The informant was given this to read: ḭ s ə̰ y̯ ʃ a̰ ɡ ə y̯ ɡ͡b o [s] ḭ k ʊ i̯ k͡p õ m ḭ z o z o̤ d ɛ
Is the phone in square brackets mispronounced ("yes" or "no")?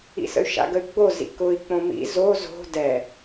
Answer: yes